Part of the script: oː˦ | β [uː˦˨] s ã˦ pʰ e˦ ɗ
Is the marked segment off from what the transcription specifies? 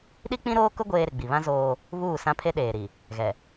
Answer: no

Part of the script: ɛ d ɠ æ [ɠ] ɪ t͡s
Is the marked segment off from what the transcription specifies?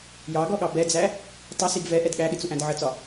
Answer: no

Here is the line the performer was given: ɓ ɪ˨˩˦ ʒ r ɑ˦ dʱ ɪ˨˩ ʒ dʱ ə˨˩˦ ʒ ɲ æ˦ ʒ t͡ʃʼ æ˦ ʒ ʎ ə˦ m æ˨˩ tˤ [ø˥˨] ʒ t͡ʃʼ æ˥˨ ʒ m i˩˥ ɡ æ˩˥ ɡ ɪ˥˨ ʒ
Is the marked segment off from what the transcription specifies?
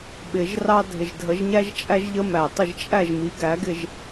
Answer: yes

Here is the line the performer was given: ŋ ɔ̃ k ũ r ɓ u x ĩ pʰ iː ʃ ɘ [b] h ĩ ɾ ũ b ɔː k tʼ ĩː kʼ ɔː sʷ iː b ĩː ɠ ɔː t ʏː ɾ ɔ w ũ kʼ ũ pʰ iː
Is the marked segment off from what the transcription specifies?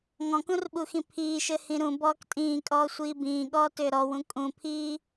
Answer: yes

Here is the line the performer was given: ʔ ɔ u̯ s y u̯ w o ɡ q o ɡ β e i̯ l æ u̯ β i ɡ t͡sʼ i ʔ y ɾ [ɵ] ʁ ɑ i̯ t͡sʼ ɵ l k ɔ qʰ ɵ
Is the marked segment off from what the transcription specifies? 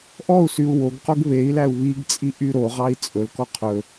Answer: yes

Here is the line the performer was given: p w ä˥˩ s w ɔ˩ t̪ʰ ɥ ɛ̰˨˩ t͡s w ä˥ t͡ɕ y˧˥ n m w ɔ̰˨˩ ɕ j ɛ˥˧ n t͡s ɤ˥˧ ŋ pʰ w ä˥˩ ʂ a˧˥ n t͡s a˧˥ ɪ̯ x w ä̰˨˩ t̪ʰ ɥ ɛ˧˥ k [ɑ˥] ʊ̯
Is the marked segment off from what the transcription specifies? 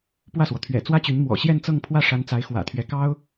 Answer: no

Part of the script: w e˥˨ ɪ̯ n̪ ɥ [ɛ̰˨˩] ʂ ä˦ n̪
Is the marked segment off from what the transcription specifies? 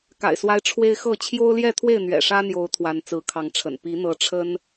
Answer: no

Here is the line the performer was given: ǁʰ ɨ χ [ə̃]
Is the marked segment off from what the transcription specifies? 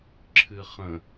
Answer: no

